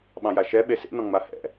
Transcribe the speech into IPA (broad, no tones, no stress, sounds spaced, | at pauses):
ɓ ɑ̃ j a ʃ ɛ ɓ e s ḛ n ɔ̃ ŋ͡m a h ɛ̰